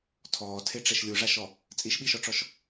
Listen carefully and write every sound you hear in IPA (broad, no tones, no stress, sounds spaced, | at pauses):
tʰ ɔː tʰ e ʈ͡ʂ ɛ ʃ lʲ u ʐ a ʃ ɔ | t͡sʼ i ʃ ɓ i ʃ ɔ ʈ͡ʂ ɔ ʃ